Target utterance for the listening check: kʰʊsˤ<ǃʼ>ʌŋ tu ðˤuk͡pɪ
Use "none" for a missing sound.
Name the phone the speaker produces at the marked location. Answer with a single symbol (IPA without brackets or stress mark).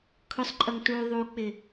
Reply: ǃʼ